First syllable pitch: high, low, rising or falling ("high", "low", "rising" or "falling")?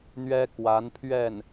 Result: high